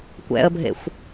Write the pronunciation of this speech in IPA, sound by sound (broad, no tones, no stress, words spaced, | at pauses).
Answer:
kʷɛ̰ə̯bʱḛxʷ